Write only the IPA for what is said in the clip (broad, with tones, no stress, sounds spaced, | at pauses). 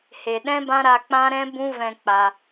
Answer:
h e˨ ɗ ɛ̃˦ b ã˦ ɾ a˧ k͡p ã˦ ɾ ɛ̃˦ b ũ˦ v ɛ̃˧ k͡p a˧